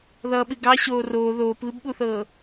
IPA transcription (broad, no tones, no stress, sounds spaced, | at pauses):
ð ʌː ɓ ɨ ɡ ɑ ɕ oː r oː ð oː p β ɨ b ɓ u θ ɤː